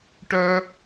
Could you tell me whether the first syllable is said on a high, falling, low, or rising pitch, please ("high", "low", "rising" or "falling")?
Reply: high